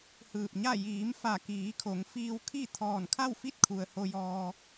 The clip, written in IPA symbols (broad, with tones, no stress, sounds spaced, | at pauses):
h ɯː˧˩ p̚ ɲ a˥˨ j iː˩˧ m f a˧˩ k iː˩˧ kʰ o˩˧ ŋ f iː˧ w kʰ i˥˨ t̪ʰ ɔː˧˩ n kʰ a˥˨ w f i˥˨ t̚ kʰ u˩ ə̯ h o˧ j ɔː˧